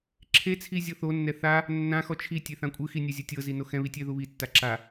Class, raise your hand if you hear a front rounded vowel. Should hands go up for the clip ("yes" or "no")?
no